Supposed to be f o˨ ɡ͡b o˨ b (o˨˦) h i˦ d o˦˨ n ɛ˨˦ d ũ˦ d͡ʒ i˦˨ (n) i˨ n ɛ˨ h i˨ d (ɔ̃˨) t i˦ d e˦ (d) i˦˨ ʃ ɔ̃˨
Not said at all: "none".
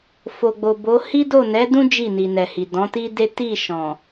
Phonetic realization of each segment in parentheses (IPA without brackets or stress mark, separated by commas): o˨˦, n, ɔ̃˨˦, t